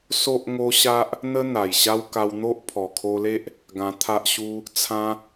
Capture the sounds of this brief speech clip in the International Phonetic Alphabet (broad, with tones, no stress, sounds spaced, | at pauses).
s o˦ ʔ ŋ o˦ ɕ a˦ ʔ | n̪ ə˦ n̪ a˨˩ j ɕ a˦ w k a˧ w n̪ o˦ ʔ pʰ ɔ˨˩ kʰ o˧ l e˦ ʔ | ɡ ã˧ t̪ʰ a˦ ʔ ɕ u˦ | t͡sʰ ã˦